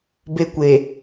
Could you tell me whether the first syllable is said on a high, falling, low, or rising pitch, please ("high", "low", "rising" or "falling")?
high